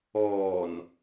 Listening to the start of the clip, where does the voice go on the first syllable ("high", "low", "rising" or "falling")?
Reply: low